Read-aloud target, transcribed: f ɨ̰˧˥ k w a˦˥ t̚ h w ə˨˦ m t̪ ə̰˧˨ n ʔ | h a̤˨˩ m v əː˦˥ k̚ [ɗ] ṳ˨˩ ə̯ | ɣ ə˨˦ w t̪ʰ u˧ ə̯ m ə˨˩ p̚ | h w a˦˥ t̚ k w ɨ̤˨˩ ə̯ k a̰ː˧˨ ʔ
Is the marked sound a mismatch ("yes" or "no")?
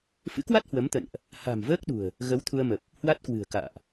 no